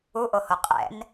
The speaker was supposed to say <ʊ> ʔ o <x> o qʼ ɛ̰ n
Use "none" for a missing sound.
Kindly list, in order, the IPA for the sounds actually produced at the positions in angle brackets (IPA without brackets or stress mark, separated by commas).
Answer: u, h